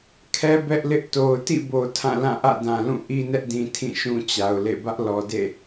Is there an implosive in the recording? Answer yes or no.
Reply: no